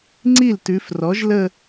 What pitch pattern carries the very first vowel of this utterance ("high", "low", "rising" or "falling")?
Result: falling